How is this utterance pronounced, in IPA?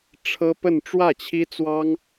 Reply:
ʈ͡ʂʰ ɤ˥ p ə˥˧ n ʈ͡ʂ w ä˥˩ t͡ɕʰ i˥ t͡s w ɑ˥ ŋ

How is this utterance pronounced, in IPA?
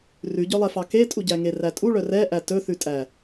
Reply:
r ʉ ɟ œ lˠ ɛ f ɑ k e tʼ u ɟ æ ŋ e r æ tʼ u ɭ œ r ɛ ʔ æ t ɵ θ ʉ tʼ æ

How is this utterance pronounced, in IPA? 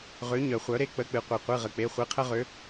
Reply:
ʁ ø˨˥ ɲ œ˨ χʷ œ˨˥ ɾ e˥ k͡p ə˧˥˧ k͡p ɨ˨ qʷ i˨ qʷ ɨ˧˥˧ ʁ ə˨ k͡p e˧˥˧ χʷ ɨ˨˥ qʰ ə˥ ʁ ø˨˥

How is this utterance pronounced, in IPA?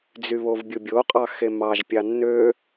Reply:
d͡z y β o v bʲ u bʲ o qʼ ɑ x e m ɑ ʒ pʲ ɑ nː ø

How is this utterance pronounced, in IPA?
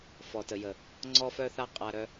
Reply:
f ɔ˨ t ə˨ j ə˨ | ŋ͡ǀ ɔ˦ f œ˦ θ a˦ qʼ a˧ ɾ œ˧

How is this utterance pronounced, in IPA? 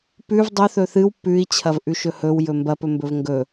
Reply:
p ʉ v dˤ ɵ θ ɵ θ ɨ w p ʉ i̯ t͡ɕʰ ɐ v ʔ ʉ ʃ ɵ h ɵ w j ɵ m b ɐ p ɵ m b ɵ v ŋ ɡ ɵ

